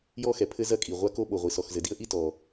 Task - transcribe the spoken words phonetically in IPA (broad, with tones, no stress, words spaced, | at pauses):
jɔ˥xɛ˩pʰɘ˥ zɐ˥kʼi˩ ʁʷa˥ko˥ɓo˩ʁʷi˩ sɔ˩xzɘ˩di˥ə̯ʔi˥ tɔ˩